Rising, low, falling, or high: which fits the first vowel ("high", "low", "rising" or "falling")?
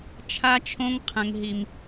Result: high